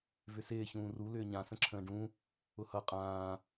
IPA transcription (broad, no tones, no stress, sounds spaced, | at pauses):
v ʏ s ɪː ç ũː r u l ʏː ɲ ã s ə̃ ǁʰ ə̃ː ɖ ũ | ʊ h ʌ qʼ ãː